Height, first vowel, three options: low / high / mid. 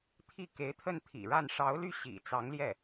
high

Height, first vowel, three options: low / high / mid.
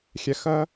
mid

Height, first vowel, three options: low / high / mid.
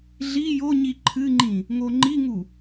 high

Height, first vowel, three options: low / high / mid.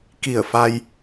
high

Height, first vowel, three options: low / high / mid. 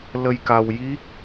mid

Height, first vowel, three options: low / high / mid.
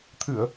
high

